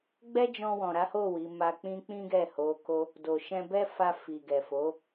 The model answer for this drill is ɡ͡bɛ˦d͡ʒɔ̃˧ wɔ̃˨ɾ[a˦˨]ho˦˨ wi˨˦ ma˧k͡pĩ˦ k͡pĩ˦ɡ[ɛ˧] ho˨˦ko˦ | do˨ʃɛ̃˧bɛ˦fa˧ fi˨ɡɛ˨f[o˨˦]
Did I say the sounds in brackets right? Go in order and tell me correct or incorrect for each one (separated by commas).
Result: incorrect, incorrect, correct